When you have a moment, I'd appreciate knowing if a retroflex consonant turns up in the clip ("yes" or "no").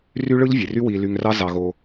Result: yes